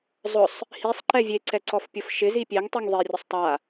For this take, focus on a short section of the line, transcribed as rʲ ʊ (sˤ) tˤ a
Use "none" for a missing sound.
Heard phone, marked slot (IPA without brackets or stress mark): sˤ